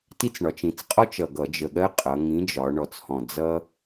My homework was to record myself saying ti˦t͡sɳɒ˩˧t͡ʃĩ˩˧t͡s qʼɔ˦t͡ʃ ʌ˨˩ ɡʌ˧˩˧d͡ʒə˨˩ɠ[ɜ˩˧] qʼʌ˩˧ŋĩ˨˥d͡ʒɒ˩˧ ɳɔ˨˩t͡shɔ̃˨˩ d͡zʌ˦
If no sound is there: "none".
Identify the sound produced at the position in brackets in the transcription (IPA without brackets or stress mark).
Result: ɜ˦